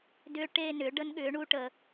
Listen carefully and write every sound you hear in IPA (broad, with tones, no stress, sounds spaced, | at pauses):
d ʏː˧ ʈ eː˥˧ n ʏː˨˥ ɖ ə˦˥ n ɠ ʏː˨˥ ɳ u˦˥ ʈ ə˧